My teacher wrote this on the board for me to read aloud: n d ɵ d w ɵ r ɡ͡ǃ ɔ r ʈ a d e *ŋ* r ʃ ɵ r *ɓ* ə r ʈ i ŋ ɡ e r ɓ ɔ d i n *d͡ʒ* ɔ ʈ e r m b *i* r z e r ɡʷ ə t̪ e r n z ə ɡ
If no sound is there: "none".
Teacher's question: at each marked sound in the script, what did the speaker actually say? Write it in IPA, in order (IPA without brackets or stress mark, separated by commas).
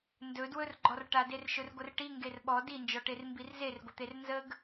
none, ɡʷ, d͡ʒ, i